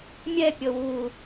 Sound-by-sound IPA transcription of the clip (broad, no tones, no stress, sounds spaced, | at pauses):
mʲ ɛ pʲ ɤ w u